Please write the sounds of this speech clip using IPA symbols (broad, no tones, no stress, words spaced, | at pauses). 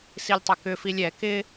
silʲtˤʏkʏfilʲ ɛ kɪ